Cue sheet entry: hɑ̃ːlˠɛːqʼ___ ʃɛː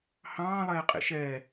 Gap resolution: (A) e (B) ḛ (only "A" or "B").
B